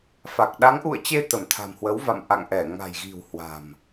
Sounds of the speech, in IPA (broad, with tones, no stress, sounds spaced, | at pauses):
f a˨˩ k̚ ɗ a˨˦ ŋ ʔ ṵ˧˨ ə̯ t͡ɕ e˧ t̪ ə˧˩ m t̪ʰ a̤˨˩ m h w ə˨˦ w v a̰˧˨ m ʔ a̰˧˨ ŋ ʔ ɛ˧˩ ŋ a̤˨˩ j ɣ i̤˨˩ w h w a̤˨˩ m